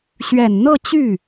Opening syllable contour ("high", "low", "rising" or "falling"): low